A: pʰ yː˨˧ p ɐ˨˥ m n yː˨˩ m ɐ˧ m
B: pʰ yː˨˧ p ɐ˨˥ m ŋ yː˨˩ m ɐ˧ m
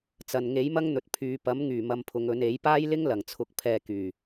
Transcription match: B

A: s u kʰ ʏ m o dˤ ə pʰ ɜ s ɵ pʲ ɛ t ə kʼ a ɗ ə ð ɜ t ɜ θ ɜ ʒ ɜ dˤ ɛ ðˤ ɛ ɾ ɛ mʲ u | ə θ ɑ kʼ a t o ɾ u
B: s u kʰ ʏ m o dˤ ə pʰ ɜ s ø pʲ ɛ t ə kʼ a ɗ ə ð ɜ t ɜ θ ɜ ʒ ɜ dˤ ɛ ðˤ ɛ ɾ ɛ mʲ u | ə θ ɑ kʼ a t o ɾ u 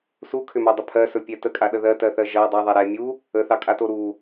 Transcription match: A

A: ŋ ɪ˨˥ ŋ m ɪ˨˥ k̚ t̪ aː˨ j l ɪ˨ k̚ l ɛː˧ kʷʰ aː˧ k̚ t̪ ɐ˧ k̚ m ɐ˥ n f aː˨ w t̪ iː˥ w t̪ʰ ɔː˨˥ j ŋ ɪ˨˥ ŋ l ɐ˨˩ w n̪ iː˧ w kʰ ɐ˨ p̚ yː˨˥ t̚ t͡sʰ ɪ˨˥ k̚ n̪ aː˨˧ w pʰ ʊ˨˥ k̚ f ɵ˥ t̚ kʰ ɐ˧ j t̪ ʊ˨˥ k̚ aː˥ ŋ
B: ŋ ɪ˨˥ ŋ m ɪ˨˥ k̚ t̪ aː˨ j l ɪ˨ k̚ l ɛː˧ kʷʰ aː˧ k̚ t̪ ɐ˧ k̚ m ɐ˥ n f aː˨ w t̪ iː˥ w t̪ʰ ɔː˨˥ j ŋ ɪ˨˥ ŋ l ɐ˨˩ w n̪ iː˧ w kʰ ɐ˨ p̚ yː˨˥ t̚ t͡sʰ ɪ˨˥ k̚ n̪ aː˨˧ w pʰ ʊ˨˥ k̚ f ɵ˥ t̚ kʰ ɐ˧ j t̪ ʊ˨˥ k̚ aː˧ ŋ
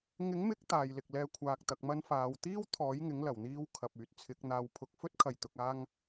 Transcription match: A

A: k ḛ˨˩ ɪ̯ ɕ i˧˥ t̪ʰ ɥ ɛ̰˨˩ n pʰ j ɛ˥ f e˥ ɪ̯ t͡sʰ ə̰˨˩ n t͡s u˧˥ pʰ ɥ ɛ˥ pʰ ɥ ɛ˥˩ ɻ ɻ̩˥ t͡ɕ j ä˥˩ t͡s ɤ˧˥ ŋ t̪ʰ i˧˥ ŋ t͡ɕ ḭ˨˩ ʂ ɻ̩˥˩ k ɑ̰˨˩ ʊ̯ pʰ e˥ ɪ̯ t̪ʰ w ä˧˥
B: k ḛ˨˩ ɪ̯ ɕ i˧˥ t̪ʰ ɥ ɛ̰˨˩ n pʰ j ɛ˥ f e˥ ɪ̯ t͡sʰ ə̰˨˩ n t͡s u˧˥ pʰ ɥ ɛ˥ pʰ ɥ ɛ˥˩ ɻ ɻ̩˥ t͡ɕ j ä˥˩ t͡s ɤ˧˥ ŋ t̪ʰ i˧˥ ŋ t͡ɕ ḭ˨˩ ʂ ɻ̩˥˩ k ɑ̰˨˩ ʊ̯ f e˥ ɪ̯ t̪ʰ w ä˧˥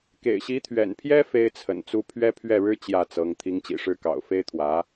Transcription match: B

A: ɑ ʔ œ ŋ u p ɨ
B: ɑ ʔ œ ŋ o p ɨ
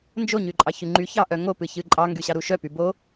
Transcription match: B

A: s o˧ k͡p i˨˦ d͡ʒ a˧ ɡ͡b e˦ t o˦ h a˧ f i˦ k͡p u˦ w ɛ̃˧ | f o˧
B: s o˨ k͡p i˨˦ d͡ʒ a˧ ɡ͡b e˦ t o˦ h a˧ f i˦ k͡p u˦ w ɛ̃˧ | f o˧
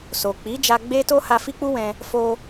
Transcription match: B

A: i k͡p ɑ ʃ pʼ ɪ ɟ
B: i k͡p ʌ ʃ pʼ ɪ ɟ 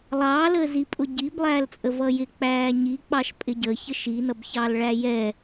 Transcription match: A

